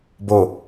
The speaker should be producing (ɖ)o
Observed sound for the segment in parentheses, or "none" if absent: b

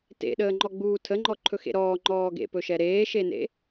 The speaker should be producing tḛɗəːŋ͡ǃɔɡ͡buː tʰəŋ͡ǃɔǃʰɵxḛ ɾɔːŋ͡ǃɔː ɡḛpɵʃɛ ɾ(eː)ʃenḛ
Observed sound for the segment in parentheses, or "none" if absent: eː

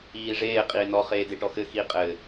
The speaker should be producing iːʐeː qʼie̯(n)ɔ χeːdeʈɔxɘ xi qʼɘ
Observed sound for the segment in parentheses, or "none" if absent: n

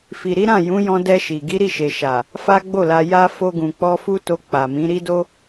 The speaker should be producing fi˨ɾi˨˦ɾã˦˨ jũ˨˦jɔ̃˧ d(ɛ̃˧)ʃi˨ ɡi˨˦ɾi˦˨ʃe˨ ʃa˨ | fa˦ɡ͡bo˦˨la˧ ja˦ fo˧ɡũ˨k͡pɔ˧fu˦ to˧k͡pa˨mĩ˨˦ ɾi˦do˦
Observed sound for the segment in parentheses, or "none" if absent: ɛ˧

